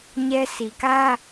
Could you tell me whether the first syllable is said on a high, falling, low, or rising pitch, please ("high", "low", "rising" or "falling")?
high